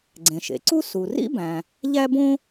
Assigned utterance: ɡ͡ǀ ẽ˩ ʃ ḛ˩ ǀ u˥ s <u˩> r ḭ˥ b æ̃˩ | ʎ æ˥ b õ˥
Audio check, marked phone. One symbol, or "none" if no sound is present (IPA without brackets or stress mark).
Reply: u˩